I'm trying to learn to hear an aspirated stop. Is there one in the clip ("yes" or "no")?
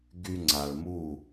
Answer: no